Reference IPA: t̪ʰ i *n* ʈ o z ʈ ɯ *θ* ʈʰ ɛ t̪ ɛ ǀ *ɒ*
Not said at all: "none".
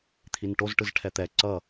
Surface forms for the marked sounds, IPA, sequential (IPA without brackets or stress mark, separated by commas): n, z, ʌ